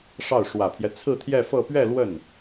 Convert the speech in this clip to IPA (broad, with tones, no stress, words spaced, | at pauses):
ʂɑ˥˩ʊ̯ ʂwä˨˩pʰjɛ˦ t͡sʰɹ̩˥˧t̪ʰjɛ˥˧fɤ˥˧ pɥɛ˥˧ lwə˥˩n